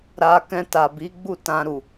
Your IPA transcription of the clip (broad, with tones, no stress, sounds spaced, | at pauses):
ɾ a˧ k ɛ̃˧ t a˨ b i˨˦ ɡ͡b u˦˨ t ã˧ ɾ u˨